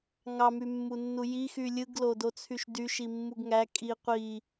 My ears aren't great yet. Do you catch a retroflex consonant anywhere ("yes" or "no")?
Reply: no